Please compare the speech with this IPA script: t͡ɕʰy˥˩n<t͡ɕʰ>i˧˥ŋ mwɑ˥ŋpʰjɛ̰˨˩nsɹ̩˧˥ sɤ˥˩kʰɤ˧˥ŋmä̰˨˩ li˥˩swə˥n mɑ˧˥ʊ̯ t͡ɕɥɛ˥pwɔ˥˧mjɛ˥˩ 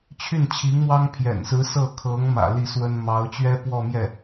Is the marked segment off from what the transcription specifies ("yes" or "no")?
no